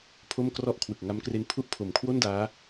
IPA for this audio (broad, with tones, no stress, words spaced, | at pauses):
pʰo˥˩mkrɔ˥˩ʔ kʰwɯ˨˩k̚ŋa˦˥mkre˦˥n pʰu˦˥ʔ pʰo˨˩mkʰwo˥˩ndaː˦˥